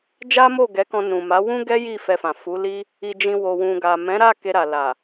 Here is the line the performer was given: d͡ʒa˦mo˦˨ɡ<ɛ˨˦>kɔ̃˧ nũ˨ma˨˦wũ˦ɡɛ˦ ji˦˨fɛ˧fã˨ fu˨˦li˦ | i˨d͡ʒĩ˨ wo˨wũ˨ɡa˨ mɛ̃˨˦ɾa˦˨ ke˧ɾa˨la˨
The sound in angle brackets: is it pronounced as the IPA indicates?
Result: yes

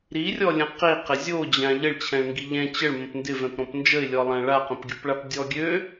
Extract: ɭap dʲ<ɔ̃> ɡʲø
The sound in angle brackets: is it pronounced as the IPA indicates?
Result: no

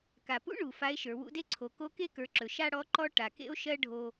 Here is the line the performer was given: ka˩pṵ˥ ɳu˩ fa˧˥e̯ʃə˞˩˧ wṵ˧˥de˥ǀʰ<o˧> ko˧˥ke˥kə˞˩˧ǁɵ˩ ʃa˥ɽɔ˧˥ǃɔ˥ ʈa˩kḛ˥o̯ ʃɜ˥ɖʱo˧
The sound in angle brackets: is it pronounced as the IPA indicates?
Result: no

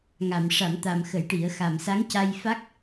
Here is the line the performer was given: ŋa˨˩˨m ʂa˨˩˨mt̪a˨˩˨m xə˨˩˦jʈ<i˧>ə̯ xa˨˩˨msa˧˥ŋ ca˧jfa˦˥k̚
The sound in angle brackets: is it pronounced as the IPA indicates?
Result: no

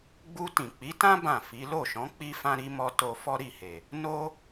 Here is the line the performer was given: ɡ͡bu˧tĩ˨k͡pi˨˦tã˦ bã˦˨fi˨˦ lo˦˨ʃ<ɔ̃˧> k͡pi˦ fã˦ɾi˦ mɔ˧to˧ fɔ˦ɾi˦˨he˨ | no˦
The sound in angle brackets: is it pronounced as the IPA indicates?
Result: no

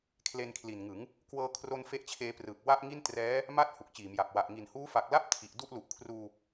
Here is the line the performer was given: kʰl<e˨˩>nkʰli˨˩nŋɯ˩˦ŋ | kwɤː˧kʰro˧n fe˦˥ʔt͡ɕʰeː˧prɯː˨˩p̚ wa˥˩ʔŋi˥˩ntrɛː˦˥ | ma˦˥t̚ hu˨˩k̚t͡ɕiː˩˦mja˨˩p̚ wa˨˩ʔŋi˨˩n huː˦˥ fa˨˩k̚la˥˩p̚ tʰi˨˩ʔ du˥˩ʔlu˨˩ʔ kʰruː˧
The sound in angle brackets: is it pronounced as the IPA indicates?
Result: no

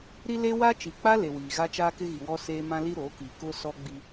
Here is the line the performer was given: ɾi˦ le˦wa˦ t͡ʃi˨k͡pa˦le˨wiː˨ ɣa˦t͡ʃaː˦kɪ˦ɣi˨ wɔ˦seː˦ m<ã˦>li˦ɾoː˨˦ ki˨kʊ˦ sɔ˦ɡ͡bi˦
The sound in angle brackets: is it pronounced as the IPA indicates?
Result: yes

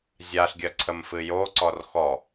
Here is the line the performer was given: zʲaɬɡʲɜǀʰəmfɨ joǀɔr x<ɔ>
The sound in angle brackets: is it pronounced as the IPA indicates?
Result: yes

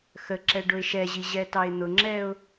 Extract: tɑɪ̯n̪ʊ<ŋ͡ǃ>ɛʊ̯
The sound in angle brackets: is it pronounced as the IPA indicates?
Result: no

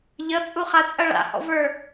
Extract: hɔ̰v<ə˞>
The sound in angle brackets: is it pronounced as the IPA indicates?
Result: yes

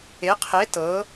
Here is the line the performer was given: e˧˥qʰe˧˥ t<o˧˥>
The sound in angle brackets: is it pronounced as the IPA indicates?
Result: no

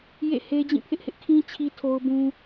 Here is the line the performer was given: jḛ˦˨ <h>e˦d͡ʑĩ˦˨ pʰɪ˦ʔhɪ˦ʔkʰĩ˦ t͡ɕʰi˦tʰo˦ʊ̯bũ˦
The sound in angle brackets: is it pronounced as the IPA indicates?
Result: yes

